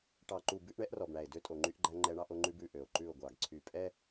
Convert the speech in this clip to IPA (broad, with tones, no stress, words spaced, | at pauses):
ʈɑ˨ǃu˨ bʉ˦ʔɳɛ˦ʔrɔ˨bɳæ˨e̯ dø˦tʼo˨ŋ͡ǃy˦ʔɡ͡ǃæ˦ ŋ͡ǃɛ˦ɳɑ˦ʔo˦ŋ͡ǃʉ˦b ʉ˨ ʔø˨o̯ǃʉ˦˨o̯ɡʷɑ˨ɡ ǀʰy˨pʼɛ˦